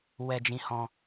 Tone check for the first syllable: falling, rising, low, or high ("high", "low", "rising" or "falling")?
high